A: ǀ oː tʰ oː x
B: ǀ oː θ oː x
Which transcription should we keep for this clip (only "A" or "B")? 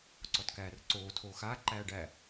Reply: A